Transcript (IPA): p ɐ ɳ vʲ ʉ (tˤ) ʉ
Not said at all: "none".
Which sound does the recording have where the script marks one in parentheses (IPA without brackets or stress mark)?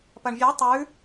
tˤ